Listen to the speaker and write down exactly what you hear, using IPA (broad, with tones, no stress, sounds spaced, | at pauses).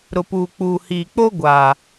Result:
ɾ ʊ˨ p uː˨ k͡p uː˨ h iː˨ k͡p o˦ ɡʷ aː˨